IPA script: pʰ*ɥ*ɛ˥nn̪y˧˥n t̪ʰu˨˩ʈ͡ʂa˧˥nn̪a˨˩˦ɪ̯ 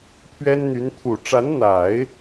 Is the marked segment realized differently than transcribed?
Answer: no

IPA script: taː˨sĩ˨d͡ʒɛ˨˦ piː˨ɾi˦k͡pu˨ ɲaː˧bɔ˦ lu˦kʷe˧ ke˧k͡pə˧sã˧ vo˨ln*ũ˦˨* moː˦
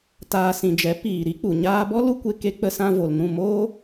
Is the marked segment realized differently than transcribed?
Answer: no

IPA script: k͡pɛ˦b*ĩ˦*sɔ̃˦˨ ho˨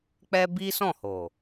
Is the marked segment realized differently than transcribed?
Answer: yes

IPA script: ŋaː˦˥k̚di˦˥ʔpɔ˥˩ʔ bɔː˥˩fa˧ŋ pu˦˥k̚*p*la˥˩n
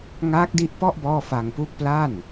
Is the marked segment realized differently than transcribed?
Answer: no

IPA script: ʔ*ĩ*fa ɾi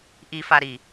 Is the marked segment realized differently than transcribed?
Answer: yes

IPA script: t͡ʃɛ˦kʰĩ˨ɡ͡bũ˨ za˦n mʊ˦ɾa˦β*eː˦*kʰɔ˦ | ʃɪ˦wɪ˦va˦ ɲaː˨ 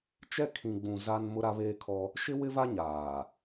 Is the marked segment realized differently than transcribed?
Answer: no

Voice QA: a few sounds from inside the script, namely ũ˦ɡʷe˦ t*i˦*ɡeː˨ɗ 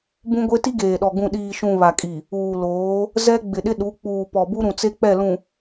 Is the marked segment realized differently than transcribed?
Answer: no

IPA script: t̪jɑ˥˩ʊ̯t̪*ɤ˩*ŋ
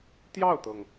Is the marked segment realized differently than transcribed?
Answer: no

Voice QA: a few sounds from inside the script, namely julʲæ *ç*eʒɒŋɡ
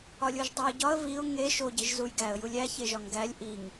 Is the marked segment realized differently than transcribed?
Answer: no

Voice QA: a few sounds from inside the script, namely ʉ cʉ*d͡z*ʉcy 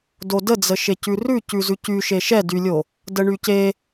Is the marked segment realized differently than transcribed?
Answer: yes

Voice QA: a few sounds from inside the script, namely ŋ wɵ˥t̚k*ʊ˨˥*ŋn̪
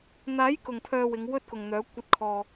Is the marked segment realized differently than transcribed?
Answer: yes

